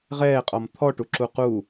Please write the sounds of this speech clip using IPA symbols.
ʁ ɛː qʼ ɔ m t̪ʰ ɔ ʈ u ǁ u q u

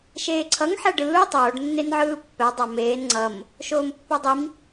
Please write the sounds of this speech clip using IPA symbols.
ʃ eː ǀʰ ʌ ŋ ħ ɛ ɖ ɯː tˤ oː ɖ nː e n ʕ ɯː pː ɛ dˤ a m eː n ŋ͡ǀ ʌ m | ʃ oː m pː o dˤ i m

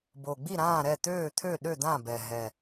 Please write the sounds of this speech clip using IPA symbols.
b o˨˩ ɡ͡b i˥˩ ɾ ãː˥˩ ɾ ɛ˥˩ t̪ øː˥˩ t̪ʰ ø˥˩ ɗ ø˥˩ d̪ ã˥˩ b ɛ˨˩ ɦ ɛ˨˩

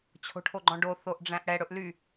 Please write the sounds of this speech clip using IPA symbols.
t͡ɕʰ o̤ ʈʰ o ɡ͡ǃ ɔ̃ ɖ o θ o ʔ ɖ͡ʐ æ̃ ʔ ɽ ɛ ɽ ɵ ʔ l y

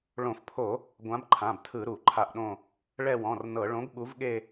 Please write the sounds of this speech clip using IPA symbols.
ɭ õ˧˩˧ f pʰ o˧˩˧ | ɡʷ ã˨˥ b ǃʰ ã˩˧˩ b tʰ ɯ˧˩˧ ɾ u˧˩˧ ǃʰ a˦˨ ʔ ɗ õ˦˨ | ɭ ɛ˦˨ w ɔ̃˩˧˩ r n ɤ˧˩˧ ɭ õ˨˥ ɡ ɓ u˨˥ v ɠ e˦˨

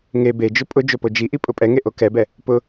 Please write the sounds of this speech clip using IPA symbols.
ŋ e b e d͡ʒ ʊ pʼ ʊ d͡ʒ o p o d͡ʒ i ʔ i pʼ ʊ pʼ ɛ ŋ e ʔ o k ɛ b ɛ | p ʊ

